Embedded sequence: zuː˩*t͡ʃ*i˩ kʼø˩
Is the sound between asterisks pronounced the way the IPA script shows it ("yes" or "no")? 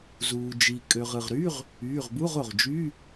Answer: no